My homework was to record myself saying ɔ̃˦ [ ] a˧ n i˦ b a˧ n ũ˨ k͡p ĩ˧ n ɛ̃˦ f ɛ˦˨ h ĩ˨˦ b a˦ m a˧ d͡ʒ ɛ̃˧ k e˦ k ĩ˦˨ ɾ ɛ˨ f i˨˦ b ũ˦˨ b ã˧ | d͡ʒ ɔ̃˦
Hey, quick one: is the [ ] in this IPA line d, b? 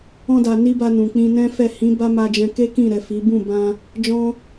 d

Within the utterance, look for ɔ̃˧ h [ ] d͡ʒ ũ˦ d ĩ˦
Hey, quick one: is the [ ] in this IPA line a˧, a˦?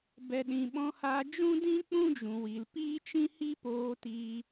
a˧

